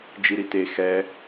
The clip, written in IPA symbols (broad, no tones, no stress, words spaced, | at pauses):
d͡ʒiɾite xɛ